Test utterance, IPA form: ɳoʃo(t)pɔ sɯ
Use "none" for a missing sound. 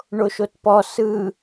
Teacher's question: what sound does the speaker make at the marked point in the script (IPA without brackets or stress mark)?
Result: t